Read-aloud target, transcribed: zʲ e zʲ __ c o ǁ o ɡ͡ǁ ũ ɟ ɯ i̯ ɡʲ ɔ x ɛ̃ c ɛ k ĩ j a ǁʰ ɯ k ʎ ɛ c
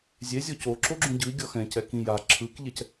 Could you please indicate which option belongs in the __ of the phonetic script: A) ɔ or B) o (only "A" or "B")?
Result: A